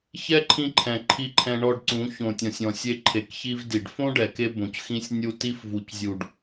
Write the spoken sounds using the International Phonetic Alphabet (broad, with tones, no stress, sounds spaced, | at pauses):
ç ɛ˦ ǃʰ ĩ˧ ǃʰ ɛ̃˨ ǃʰ i˧ ǃʰ ɛ̃˧ ɳ ɔ˧ ɖ ǀ ũ˨˦ ç õ˨ tʲ ɔ̃˨ sʲ ɔ̃˨ sʲ e˧ ǃʰ e˨ k ç i˧ v d i˨ ɖ f õ˦ ɖ ɛ˨ k e˧ b õ˨ c x ĩ˦ sʲ nʲ u˧ t i˧ f v u˨ c zʲ u˨ ɖ